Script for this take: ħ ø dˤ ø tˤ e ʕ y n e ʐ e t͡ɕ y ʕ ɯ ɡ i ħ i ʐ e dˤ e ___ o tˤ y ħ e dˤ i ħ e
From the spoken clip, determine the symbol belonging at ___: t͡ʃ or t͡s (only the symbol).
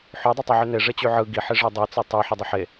t͡s